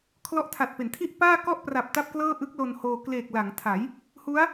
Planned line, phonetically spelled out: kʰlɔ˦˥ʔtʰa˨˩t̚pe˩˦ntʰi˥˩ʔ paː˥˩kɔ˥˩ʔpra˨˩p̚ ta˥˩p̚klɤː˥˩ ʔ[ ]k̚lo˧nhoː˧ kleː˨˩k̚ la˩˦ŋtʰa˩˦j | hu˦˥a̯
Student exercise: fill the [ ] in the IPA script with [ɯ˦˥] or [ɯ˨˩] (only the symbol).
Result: ɯ˦˥